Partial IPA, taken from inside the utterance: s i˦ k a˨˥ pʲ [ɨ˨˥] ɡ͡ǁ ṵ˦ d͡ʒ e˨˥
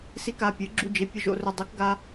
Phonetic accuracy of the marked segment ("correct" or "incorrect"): correct